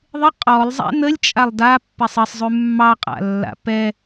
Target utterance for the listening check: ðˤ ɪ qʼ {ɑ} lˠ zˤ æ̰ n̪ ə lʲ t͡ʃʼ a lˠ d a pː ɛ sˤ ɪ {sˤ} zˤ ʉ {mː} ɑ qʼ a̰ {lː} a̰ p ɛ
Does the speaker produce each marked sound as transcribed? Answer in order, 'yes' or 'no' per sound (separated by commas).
no, yes, yes, yes